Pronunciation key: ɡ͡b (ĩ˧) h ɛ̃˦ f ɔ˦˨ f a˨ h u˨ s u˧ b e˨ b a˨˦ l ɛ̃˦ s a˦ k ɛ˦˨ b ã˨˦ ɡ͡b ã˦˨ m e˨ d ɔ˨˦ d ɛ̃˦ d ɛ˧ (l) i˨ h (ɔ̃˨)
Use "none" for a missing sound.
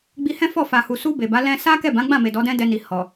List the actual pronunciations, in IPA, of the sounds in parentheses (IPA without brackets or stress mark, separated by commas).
i˧, n, ɔ˨